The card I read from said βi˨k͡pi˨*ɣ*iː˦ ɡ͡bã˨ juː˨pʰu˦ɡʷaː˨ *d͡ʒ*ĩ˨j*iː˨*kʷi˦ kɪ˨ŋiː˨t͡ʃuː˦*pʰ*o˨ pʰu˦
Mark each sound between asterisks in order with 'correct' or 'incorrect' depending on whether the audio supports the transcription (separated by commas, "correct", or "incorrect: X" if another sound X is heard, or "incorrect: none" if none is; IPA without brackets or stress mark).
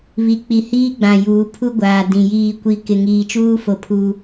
incorrect: h, incorrect: d, incorrect: iː˦˨, incorrect: f